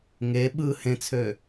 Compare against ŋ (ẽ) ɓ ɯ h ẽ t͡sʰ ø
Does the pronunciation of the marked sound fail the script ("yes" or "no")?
yes